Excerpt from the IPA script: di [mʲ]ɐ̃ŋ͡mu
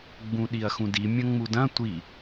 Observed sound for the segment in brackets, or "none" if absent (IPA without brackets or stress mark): mʲ